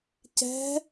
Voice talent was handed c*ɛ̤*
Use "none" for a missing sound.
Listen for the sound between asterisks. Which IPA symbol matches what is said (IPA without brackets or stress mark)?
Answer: ɛ̤